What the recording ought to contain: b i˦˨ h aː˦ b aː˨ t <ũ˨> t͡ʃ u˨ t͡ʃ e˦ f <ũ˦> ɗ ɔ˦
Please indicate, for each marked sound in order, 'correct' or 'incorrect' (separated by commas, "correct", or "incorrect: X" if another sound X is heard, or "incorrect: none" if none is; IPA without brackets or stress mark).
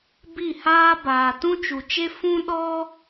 incorrect: ũ˦, correct